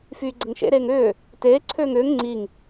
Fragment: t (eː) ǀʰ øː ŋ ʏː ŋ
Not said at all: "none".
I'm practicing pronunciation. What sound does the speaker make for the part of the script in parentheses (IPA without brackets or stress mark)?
eː